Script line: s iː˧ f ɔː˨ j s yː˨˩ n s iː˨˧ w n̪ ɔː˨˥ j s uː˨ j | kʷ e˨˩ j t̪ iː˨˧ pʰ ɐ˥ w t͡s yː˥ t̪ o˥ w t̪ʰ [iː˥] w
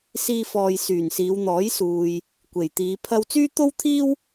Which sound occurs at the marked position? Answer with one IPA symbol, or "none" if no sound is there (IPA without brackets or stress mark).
iː˥